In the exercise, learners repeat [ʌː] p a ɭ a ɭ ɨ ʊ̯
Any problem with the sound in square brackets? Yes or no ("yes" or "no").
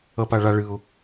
yes